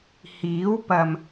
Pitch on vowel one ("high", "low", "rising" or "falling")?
rising